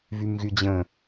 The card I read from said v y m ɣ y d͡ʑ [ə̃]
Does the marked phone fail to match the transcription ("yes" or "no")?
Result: no